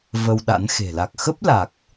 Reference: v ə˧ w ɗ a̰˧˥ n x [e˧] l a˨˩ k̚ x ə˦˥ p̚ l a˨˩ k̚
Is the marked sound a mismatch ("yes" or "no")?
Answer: yes